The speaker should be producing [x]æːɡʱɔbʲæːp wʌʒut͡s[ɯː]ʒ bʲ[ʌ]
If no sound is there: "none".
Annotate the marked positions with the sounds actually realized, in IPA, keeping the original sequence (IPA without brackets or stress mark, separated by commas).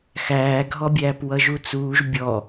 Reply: x, uː, ɔ